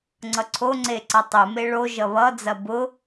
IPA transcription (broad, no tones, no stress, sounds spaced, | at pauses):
ŋ͡ǀ ʌ ǀʰ o ŋ͡ǀ e ǀ ʌ tˤ u m e ɭ o ʒ ʌ β ʌ d͡z ɐ b ʊ